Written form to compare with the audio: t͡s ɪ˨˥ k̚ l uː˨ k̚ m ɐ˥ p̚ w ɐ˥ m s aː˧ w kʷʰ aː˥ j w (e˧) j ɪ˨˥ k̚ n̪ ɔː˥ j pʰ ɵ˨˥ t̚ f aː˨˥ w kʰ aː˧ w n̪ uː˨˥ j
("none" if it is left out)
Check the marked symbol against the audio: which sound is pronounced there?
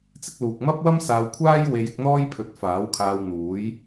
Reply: e˧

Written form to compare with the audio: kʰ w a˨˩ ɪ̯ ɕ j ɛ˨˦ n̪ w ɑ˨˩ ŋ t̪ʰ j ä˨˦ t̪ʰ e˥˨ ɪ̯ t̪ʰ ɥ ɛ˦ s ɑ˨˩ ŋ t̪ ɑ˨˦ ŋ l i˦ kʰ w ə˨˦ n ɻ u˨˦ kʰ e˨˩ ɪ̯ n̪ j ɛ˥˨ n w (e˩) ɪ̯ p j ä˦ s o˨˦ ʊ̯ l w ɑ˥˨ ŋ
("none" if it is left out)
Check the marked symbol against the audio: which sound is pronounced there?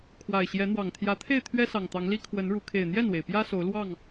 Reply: e˩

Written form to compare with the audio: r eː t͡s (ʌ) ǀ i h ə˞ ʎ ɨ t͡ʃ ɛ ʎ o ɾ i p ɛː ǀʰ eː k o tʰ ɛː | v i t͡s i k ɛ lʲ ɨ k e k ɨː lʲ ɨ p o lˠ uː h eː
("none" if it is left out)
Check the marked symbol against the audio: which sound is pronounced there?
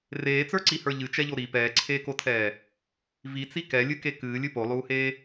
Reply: ə˞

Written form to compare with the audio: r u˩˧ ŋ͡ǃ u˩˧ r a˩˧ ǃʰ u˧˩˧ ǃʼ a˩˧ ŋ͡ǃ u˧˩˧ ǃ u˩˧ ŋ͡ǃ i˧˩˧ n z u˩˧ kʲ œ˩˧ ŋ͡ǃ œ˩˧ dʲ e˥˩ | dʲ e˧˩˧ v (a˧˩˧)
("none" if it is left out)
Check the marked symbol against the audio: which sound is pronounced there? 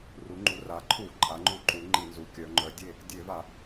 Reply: a˧˩˧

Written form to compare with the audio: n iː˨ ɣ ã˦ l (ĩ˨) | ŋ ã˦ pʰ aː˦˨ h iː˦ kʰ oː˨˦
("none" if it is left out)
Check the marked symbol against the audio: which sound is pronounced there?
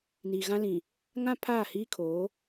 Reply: ĩ˨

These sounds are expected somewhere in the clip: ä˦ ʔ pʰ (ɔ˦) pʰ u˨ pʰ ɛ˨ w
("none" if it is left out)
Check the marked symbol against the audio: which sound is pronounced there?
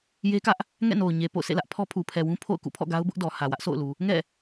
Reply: ɔ˦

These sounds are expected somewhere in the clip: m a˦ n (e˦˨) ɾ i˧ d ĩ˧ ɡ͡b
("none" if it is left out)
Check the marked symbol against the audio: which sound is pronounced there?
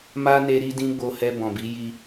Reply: e˧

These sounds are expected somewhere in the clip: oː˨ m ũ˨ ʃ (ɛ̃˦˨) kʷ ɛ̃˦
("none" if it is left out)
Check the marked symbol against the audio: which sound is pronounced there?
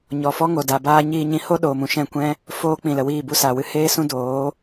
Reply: ɛ̃˦˨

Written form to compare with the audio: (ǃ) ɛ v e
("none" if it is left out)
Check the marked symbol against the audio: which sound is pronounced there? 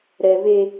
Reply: ɾ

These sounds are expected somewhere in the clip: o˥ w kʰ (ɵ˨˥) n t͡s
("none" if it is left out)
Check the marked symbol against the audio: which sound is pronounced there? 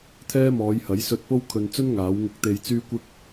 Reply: ɵ˨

